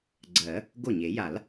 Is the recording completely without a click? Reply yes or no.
no